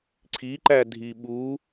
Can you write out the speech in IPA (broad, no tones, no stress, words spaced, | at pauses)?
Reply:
ǀʰiǃæ dʱiɓu